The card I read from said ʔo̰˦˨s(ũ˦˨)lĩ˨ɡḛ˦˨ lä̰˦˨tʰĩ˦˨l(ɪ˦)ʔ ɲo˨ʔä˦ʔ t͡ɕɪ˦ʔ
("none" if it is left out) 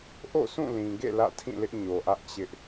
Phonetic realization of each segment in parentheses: ũ˦˨, ɪ˦

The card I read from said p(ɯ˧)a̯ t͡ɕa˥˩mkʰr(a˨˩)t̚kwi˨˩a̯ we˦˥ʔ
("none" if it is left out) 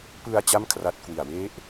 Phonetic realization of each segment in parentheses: ɯ˧, a˦˥

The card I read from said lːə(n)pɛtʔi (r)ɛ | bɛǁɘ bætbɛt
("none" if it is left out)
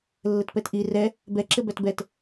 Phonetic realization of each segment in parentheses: t, r

